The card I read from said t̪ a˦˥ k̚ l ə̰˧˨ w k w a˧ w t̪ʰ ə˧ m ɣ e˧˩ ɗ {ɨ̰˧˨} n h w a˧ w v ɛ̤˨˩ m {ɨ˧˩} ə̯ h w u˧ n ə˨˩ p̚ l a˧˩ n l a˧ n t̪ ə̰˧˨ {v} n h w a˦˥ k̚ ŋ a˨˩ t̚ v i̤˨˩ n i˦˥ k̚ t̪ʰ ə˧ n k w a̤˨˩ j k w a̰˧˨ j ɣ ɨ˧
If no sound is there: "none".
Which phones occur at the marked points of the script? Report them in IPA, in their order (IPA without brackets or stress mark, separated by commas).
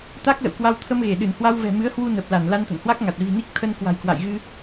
ɨ˧˩, ɨ˨˦, none